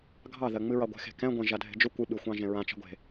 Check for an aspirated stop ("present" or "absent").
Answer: absent